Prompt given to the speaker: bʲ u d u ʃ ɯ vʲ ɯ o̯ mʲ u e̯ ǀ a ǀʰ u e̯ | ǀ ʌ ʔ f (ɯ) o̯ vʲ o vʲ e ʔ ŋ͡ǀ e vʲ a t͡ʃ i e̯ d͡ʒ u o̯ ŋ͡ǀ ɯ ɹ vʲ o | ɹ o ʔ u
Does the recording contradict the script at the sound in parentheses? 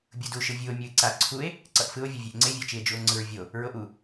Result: no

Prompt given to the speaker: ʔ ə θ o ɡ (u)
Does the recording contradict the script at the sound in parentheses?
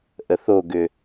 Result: yes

